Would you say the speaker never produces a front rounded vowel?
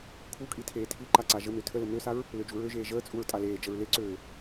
no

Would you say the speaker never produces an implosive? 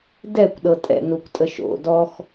no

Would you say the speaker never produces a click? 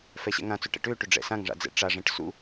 yes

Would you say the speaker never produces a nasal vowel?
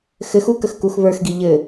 yes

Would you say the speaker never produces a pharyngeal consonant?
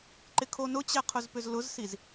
yes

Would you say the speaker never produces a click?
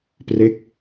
yes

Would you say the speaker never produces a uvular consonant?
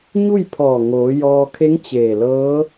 yes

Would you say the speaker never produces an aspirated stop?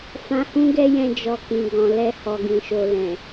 yes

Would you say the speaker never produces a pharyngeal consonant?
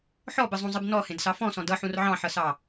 no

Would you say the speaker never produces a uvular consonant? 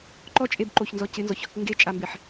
yes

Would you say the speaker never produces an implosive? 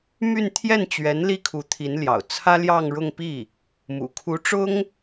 yes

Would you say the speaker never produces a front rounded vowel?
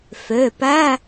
no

